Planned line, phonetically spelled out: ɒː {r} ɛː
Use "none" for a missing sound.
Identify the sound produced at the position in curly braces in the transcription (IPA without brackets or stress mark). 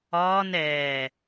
n